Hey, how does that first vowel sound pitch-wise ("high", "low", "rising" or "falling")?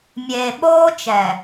low